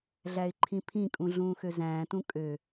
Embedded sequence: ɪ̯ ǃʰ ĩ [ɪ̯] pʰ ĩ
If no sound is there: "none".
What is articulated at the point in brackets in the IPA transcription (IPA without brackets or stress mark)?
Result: none